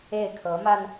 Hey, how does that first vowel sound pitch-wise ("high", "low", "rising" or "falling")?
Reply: falling